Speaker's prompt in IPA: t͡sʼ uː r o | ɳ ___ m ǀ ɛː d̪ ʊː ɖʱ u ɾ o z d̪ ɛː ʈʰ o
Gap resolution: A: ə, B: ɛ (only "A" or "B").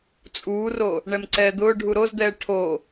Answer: B